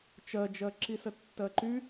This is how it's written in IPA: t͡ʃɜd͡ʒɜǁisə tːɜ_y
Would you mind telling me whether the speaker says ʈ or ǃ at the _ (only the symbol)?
ǃ